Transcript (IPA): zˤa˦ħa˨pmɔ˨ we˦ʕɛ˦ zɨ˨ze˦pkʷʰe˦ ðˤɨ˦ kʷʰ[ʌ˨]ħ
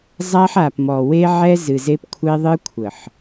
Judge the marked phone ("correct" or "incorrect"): incorrect